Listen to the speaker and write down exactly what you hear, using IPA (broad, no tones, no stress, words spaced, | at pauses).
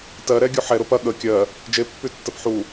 tɜɾɛ ɡʲuħɛ ɾʊpɐ ɠə kʲɜ | d͡ʒepːytːəp ħu